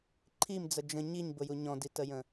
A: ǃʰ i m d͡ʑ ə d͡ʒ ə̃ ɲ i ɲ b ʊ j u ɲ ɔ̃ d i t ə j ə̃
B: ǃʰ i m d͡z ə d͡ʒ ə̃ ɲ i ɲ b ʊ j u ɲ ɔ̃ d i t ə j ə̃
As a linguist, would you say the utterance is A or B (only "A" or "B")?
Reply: B